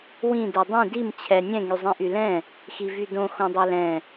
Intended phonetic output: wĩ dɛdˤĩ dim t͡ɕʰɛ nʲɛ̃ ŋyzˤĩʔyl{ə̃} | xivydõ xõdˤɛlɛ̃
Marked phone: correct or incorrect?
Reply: incorrect